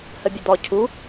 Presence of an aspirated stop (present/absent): present